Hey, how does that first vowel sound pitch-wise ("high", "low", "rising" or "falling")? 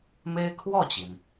high